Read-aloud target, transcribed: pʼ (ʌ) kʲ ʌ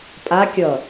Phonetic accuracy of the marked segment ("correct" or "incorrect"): incorrect